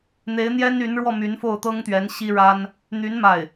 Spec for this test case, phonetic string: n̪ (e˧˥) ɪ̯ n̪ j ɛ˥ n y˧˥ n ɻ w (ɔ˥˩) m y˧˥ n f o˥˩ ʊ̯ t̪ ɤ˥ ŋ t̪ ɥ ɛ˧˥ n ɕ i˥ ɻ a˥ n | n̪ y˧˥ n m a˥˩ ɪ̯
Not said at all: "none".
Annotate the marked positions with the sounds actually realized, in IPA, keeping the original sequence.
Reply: e˧˥, ɔ˥˩

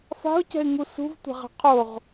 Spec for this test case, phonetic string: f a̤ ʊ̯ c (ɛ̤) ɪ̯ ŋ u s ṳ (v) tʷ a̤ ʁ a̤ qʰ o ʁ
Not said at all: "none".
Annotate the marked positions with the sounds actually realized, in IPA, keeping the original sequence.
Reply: ɛ̤, v

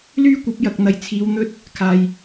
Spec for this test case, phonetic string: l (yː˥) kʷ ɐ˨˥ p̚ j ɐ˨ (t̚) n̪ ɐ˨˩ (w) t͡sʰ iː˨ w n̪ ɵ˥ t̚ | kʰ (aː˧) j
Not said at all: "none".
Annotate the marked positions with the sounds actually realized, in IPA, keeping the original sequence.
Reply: yː˥, k̚, j, aː˨

